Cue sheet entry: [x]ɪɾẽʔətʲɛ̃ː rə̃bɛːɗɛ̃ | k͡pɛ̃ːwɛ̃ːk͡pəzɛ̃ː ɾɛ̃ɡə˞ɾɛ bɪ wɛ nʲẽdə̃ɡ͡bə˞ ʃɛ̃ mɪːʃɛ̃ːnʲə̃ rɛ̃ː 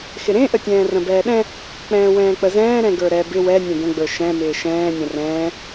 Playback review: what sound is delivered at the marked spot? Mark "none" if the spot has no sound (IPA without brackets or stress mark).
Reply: x